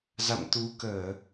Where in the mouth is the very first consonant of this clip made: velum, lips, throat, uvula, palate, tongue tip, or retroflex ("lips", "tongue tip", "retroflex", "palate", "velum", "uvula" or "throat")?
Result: tongue tip